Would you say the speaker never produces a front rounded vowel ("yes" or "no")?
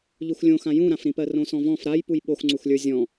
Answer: yes